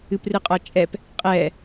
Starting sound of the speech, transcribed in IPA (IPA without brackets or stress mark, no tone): ɨ